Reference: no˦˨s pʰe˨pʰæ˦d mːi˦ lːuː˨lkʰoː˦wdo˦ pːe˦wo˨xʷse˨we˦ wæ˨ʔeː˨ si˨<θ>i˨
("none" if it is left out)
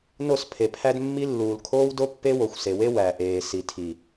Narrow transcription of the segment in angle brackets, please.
tʰ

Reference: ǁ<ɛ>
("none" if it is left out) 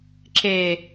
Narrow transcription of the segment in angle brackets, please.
e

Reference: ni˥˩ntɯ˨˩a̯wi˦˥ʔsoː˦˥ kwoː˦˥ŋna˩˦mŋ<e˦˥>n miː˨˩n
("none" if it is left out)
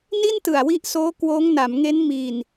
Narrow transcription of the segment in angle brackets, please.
e˦˥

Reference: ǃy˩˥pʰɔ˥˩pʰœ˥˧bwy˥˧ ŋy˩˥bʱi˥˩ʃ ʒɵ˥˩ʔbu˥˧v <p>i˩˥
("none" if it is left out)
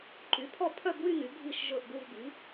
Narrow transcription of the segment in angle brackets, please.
b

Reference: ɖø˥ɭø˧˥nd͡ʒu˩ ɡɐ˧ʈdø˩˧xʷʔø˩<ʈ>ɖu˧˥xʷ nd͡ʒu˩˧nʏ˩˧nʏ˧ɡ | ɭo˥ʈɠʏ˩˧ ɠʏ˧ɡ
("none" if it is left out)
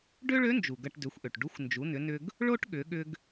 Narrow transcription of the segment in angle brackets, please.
ʈ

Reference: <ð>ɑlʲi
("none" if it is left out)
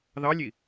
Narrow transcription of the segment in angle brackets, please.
ð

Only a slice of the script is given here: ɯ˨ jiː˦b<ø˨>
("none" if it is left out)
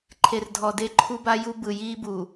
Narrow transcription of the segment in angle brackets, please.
u˨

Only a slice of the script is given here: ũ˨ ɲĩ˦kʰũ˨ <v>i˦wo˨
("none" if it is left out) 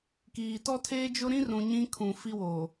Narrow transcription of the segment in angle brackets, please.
f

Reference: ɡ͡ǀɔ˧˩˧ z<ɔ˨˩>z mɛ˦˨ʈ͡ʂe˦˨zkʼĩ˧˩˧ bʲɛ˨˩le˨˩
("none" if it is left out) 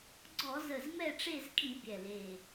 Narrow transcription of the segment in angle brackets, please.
ə˨˩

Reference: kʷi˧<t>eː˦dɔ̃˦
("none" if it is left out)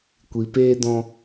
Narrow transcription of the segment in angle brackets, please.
p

